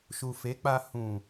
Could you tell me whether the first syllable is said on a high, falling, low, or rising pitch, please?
low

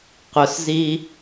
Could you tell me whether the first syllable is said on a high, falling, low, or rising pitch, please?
low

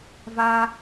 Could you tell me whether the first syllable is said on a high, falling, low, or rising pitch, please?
high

